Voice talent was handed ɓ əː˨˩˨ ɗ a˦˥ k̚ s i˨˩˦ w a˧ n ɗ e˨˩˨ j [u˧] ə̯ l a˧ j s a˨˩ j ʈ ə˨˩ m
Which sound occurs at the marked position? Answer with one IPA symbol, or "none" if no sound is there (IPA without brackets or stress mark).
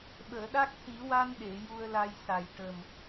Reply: u˧